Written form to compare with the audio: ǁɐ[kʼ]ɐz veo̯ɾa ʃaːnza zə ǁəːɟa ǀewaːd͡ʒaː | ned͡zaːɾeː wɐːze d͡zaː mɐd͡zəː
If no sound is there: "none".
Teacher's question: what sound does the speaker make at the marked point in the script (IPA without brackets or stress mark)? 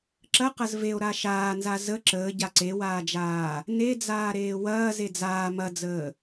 q